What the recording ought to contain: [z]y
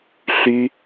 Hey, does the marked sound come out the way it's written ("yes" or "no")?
no